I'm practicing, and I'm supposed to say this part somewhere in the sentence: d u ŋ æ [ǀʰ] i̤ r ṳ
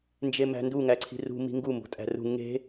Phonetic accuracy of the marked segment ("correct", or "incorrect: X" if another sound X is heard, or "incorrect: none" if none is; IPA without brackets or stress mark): correct